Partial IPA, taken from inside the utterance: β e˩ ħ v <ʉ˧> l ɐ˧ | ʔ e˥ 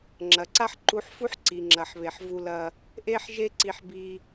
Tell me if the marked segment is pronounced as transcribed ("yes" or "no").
no